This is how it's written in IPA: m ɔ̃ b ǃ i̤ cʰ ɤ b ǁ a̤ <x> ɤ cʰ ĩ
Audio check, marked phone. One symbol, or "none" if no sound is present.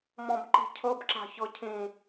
ç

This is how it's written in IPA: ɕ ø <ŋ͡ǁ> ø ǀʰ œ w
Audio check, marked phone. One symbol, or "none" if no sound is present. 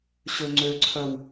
ŋ͡ǀ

